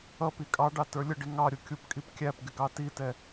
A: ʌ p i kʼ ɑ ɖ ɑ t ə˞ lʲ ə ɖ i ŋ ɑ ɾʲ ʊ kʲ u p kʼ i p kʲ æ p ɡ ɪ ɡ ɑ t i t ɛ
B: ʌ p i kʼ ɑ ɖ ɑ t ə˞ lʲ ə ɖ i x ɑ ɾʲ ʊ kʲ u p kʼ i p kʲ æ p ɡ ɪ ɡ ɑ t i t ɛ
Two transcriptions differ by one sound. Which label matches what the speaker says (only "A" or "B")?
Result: A